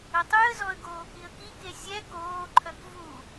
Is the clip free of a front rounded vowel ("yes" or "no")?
no